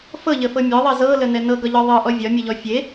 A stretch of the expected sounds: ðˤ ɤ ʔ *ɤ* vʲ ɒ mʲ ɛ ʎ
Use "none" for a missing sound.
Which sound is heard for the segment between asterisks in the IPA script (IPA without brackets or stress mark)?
ɔ